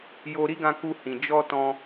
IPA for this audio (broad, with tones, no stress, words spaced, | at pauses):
jo˧ɾi˦ɡã˧ku˧ hĩ˨ d͡ʒɔ˧ tɔ̃˧